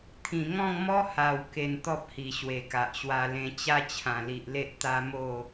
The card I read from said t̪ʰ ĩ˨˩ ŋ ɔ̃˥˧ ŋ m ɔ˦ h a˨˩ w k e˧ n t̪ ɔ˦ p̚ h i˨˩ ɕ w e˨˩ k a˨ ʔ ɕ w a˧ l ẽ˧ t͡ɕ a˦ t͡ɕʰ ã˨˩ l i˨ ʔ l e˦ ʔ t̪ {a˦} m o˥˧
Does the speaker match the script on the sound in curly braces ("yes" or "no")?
yes